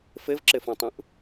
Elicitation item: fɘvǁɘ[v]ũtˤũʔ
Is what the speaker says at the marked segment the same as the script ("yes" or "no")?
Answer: no